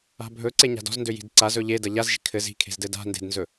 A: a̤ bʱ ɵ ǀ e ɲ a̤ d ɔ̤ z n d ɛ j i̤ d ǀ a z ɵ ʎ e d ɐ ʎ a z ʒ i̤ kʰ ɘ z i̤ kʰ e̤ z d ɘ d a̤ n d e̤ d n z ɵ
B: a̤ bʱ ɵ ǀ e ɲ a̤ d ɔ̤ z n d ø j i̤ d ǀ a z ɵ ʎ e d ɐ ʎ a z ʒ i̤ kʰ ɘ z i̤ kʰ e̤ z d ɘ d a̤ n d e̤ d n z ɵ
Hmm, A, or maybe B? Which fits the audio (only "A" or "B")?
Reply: B